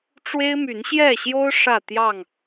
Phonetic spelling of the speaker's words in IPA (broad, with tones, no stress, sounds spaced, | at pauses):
ʈ͡ʂ w e˦ ɪ̯ m y˨˦ n ɕ j ɛ˥˨ ɕ j o˦ ʊ̯ ʂ ä˥˨ t̪ j ɑ˥˨ ŋ